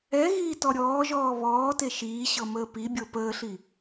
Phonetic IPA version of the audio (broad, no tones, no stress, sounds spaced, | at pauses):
ɛ ɣ iː t ɔ ɾʲ ɔː ʒ ɔː β ɔː t e ʃ iː ɕ ɤ m əː p i bʲ ɤ p əː ɬ i